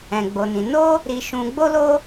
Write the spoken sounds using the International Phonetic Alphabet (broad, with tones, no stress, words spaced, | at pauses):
ɛ̃˨ɡ͡bo˨nĩ˨ no˧ | ɾi˨ʃũ˨ɡ͡bo˧lo˧